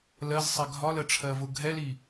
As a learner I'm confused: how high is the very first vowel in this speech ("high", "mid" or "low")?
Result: mid